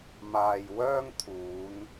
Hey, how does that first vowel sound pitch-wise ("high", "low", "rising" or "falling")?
low